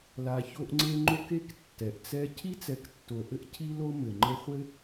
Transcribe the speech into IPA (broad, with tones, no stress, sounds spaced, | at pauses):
l a˨ ç o˦ ʔ ŋ͡ǀ e˦ ŋ͡ǃ o˥ k e˥ k tː ɛ˩ ʔ t͡s ɛ˦ cʰ i˥ t͡s ɛ˨ k tː o˩ ʔ ɘ˥ ʔ cʰ i˥ l o˥ m ɘ˩ ŋ͡ǃ ɘ˦ χʷ ɘ˥